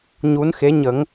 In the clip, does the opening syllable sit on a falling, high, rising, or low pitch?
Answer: rising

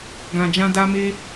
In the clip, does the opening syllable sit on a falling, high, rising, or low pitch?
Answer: low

